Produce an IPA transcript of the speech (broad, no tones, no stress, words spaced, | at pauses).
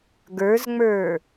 ɡə˞zŋ͡mə˞